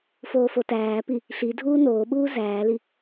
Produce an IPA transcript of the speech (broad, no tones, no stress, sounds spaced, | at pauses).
f oː f o t æː p i | ɬ i dʱ uː n oː ɓ uː z æː l i